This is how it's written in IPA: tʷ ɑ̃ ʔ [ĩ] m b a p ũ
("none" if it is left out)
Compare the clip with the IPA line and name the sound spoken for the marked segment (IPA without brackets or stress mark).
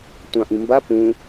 ĩ